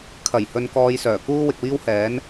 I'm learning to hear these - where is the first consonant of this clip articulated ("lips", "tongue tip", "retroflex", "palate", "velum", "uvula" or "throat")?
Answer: velum